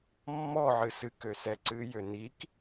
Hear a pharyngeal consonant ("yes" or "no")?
yes